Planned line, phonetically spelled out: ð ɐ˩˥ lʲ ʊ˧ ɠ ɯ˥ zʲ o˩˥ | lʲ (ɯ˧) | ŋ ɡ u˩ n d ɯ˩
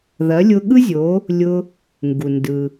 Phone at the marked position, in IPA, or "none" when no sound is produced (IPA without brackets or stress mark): ʊ˧